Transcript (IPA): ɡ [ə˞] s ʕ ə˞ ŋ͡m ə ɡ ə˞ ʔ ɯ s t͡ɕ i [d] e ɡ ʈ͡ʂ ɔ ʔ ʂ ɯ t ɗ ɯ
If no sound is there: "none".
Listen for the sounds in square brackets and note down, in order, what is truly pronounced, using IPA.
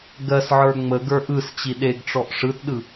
ɜ, ɗ

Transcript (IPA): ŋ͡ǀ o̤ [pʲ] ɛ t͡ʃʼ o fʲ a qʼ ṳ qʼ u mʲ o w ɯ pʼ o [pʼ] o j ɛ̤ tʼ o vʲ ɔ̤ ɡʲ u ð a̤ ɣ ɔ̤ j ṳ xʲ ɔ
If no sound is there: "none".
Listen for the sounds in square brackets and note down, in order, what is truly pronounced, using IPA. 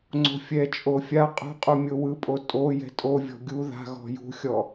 fʲ, tʼ

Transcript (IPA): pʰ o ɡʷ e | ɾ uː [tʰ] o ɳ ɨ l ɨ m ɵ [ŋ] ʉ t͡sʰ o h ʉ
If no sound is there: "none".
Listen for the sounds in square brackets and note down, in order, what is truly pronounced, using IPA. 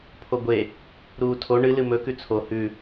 tʰ, k

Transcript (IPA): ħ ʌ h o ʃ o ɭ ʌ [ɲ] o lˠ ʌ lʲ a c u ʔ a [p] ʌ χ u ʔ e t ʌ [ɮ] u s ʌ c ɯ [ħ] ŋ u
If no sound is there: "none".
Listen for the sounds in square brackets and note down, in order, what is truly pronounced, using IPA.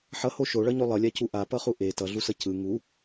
ɲ, p, ɮ, none

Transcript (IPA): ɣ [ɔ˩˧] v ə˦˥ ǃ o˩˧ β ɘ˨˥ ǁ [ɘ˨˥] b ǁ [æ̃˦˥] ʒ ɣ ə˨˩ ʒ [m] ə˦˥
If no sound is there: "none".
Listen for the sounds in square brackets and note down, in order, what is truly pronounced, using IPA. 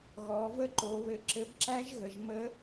ɔː˩˧, ɘ˨˥, æ˦˥, m

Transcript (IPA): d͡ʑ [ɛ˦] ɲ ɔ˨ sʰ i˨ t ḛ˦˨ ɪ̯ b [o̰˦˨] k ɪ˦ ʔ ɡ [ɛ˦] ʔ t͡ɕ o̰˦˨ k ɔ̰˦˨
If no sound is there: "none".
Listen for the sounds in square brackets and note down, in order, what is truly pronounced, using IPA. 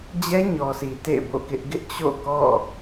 ɛ˦, o̰˦˨, ɪ˦

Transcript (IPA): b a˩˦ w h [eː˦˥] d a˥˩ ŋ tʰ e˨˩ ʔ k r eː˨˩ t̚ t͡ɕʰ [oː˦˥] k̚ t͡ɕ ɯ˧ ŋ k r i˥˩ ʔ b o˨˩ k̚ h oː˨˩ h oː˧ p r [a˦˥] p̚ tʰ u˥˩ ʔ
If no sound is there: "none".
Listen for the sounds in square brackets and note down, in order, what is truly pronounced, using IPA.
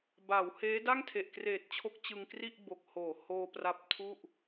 eː˦˥, o˦˥, a˦˥

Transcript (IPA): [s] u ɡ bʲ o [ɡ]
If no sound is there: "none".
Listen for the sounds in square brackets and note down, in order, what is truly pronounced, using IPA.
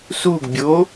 s, none

